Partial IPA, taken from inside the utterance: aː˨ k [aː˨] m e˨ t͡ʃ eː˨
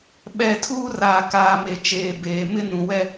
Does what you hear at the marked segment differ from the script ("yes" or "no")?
no